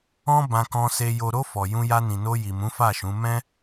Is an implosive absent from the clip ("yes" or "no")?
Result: yes